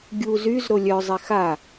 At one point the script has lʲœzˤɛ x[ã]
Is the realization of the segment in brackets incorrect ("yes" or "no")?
yes